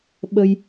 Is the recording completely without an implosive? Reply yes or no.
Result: no